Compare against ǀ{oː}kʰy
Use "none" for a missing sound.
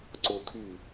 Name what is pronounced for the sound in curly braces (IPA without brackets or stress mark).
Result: oː